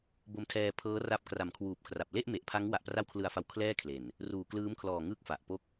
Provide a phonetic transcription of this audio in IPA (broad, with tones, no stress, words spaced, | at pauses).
bo˧mtʰɛː˧pʰɤː˦˥ra˦˥p̚ kra˨˩mkʰwuː˨˩p̚kʰra˨˩p̚ le˥˩ʔme˨˩ʔpʰa˦˥ŋ wa˨˩ʔpra˦˥wkʰlɯ˨˩a̯fa˨˩w kʰlɛː˥˩kʰle˨˩n | ruː˨˩klɯː˦˥mkʰlɔː˨˩ ŋɯː˥˩k̚fa˨˩ʔpo˥˩k̚